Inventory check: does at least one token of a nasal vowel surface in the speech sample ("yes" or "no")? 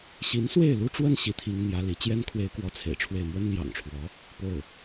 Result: no